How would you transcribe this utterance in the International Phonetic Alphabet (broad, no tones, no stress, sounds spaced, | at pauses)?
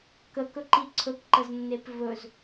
k ə k ɵ ǃ i ǀʰ ɵ k ǃ ə z nː e p v ɵ z